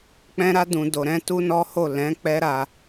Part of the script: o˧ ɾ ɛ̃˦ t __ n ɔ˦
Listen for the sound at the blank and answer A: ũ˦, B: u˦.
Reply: B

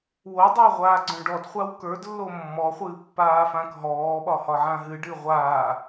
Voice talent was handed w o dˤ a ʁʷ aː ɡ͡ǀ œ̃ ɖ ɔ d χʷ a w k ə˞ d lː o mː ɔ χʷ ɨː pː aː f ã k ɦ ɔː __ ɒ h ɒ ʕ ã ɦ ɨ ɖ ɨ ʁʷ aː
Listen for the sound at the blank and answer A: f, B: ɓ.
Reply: B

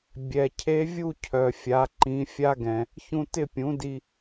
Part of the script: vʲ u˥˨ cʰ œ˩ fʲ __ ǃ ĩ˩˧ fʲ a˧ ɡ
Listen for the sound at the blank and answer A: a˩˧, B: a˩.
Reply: A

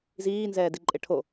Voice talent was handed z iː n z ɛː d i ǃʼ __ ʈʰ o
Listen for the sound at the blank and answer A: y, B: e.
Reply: B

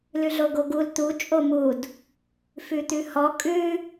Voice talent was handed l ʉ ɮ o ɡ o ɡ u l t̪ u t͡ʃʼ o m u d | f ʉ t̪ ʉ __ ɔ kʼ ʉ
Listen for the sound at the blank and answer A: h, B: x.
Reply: A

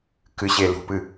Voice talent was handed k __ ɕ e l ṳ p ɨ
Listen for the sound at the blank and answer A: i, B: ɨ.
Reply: B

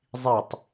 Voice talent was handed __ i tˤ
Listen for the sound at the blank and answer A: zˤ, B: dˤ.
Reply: A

